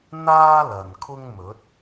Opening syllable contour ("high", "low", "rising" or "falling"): high